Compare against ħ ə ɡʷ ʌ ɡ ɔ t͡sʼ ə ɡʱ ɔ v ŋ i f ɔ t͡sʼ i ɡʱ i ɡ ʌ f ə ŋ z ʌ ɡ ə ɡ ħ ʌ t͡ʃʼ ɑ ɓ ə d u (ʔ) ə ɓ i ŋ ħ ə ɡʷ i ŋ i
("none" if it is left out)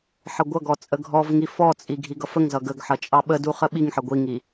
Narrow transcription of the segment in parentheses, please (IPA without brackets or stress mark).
χ